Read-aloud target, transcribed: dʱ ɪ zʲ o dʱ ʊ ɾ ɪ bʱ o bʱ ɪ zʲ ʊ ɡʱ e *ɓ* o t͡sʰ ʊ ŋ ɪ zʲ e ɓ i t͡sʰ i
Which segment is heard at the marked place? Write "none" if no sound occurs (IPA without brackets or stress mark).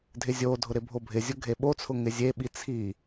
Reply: ɓ